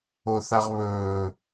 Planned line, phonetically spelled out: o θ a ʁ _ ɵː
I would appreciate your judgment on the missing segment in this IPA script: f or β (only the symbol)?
β